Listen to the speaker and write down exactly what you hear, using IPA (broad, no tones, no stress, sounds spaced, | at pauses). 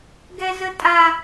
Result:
ɡ ɛ z ə tʼ a